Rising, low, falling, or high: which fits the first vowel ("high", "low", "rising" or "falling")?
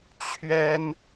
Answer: high